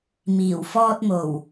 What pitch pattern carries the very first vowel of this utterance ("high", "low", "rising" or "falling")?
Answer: low